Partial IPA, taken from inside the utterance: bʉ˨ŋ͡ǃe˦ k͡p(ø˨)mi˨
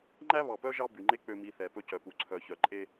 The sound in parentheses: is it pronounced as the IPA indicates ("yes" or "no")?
yes